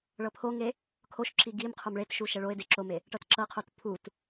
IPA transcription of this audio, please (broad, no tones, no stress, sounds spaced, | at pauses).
ɭ ɤ pʰ o ŋ e | kʰ o ʃ ǁ i ɡ i m qʰ o m ɭ e t ʃ u ʃ ɛ ɭ o ɪ̯ d e ǁ o m e | ʈ ɤ t ǁ ɤ qʰ o t pʰ u t